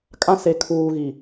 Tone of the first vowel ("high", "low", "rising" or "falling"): high